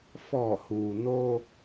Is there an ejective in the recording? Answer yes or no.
no